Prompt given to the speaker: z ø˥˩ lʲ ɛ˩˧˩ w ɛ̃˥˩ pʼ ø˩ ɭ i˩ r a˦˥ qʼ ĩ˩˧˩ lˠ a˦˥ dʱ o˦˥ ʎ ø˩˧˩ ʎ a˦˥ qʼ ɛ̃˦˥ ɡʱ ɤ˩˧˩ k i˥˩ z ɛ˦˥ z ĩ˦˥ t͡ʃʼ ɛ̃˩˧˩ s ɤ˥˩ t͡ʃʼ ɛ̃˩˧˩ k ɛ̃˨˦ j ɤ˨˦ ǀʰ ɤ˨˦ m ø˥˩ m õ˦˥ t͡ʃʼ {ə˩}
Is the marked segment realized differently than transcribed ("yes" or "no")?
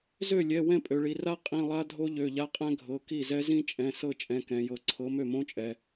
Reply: yes